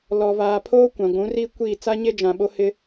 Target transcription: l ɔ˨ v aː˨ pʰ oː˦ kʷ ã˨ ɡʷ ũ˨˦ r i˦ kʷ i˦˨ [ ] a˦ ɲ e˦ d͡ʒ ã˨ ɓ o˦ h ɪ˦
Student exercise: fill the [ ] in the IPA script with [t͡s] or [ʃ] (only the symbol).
t͡s